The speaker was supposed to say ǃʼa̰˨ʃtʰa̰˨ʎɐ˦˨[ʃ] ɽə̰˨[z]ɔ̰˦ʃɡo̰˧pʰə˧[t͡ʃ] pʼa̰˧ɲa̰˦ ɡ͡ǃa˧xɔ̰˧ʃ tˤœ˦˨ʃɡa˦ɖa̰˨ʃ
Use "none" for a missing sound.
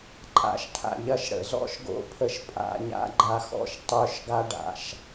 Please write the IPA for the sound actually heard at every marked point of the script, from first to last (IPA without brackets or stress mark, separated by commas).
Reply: ʃ, z, ʃ